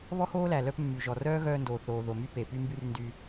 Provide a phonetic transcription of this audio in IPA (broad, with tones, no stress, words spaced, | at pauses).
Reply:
βɔ˥hoː˥læ˩ lœ˥pmːy˩ʒɔ˩ rœː˥ɣœː˧ndoː˩ θoː˩ðo˩ my˥pe˩py˥mby˥r ndy˧